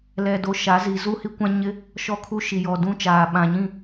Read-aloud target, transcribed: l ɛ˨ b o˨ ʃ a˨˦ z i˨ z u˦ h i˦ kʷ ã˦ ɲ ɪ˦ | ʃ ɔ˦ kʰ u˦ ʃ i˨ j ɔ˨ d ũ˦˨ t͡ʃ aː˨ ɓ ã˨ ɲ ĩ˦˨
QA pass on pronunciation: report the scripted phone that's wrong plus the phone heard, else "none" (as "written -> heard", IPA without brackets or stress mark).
b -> d